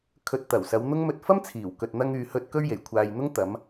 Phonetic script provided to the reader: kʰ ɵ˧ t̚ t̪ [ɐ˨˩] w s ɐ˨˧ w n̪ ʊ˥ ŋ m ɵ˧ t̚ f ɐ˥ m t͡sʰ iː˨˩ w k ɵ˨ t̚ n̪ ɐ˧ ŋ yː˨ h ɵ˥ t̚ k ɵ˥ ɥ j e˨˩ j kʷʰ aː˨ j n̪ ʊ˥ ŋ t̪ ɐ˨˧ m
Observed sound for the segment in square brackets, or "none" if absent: ɐ˨˩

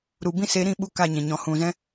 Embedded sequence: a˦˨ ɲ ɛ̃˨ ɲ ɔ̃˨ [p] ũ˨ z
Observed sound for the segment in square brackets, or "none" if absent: h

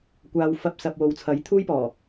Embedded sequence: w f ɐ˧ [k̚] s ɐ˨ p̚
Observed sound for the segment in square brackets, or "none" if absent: p̚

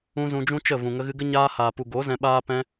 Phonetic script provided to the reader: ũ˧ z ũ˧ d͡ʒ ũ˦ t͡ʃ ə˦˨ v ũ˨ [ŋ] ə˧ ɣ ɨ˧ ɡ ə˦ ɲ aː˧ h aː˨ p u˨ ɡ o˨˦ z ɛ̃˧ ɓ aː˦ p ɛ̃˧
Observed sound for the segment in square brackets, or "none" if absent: ŋ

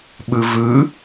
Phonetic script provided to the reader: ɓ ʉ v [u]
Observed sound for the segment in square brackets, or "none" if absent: ʉ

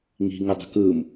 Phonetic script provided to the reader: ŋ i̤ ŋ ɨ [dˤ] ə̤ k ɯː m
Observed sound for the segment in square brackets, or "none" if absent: dˤ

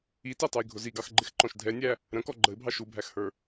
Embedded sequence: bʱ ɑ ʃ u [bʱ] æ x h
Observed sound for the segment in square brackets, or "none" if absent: bʱ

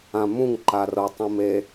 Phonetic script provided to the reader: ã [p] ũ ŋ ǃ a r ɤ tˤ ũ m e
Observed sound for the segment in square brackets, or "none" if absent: m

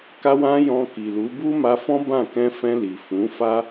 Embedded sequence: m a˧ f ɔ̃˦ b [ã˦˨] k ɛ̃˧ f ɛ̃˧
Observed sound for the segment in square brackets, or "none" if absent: ã˦˨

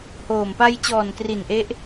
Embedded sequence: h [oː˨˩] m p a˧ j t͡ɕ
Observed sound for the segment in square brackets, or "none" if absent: oː˨˩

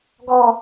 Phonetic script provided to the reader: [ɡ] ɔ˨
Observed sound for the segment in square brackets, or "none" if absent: ɡ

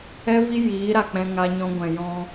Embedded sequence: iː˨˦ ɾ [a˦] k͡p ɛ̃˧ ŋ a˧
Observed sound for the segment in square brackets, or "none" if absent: a˨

